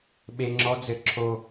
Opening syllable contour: high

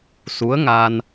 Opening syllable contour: rising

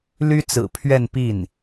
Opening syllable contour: high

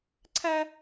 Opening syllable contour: high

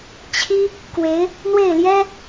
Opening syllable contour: high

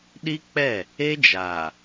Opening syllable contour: high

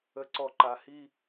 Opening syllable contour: low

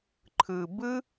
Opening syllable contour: low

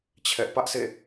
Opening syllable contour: high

